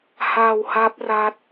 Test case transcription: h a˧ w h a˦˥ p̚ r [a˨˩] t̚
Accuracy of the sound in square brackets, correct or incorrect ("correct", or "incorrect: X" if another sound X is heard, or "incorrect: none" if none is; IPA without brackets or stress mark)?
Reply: incorrect: a˦˥